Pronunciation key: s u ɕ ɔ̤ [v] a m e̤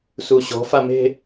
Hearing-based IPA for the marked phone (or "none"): f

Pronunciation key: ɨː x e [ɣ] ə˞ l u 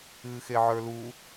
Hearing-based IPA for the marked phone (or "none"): ʕ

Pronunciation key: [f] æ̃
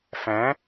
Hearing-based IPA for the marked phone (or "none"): f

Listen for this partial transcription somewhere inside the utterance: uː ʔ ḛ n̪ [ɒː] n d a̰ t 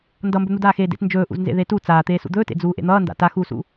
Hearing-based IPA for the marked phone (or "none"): ʌː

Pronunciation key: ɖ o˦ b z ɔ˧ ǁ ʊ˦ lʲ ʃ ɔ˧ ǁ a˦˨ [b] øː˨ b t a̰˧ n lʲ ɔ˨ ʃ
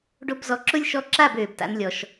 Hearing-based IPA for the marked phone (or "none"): b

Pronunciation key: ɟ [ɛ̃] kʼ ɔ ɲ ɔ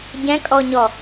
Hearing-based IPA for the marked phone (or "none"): ɛ̃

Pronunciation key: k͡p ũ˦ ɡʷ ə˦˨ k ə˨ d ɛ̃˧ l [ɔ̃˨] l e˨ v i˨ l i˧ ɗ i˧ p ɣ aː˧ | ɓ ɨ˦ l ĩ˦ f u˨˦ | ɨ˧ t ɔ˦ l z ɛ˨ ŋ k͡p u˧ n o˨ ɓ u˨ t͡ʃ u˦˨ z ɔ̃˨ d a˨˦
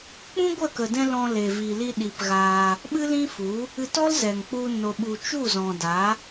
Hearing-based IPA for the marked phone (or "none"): ɔ̃˧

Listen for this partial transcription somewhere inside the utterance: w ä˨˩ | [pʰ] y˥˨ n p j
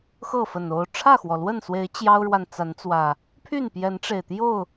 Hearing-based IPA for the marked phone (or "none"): pʰ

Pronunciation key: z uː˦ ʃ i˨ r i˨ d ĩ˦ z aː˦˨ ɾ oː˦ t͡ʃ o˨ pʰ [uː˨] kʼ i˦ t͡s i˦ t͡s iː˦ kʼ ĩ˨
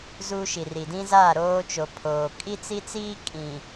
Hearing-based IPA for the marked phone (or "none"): oː˨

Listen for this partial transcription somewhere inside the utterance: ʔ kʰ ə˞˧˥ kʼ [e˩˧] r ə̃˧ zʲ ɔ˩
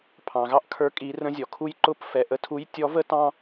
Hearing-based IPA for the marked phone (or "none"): i˩˧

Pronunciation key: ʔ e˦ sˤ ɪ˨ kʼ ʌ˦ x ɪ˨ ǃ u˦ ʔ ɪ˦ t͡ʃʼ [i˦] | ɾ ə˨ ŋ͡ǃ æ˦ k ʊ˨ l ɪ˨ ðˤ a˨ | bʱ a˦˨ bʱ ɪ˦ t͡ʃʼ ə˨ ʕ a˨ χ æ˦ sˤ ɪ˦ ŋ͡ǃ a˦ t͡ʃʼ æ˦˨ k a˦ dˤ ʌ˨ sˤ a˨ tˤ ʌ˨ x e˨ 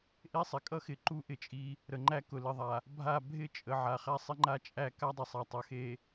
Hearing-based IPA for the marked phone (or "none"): i˦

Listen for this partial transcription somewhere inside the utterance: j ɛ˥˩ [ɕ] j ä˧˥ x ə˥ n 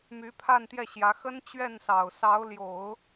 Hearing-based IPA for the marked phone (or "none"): ɕ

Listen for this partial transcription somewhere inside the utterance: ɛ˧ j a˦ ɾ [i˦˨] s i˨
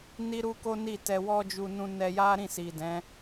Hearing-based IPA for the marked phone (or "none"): ĩ˦˨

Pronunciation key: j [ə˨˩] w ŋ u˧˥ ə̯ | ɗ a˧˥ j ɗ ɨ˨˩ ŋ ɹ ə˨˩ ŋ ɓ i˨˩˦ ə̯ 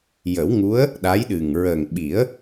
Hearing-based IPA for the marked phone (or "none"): ə˨˩˦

